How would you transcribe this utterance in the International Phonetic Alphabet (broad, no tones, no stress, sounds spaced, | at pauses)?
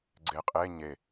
ɡ͡ǀ e qʼ e ɲ e